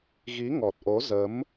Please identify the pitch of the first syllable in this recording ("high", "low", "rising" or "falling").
rising